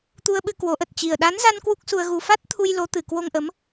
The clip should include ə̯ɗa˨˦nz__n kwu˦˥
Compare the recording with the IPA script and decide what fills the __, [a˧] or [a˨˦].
a˧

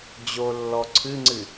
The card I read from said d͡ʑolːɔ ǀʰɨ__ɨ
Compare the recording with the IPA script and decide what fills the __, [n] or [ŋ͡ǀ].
ŋ͡ǀ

